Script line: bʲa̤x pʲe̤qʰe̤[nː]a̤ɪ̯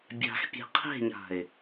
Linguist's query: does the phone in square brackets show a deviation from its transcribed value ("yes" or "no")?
yes